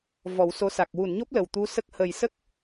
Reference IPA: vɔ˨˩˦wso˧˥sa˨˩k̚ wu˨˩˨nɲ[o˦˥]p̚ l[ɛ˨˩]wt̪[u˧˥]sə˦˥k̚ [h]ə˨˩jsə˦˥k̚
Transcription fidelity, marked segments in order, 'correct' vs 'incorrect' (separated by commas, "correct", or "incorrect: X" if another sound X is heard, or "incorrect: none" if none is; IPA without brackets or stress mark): correct, incorrect: ə˨˩, correct, correct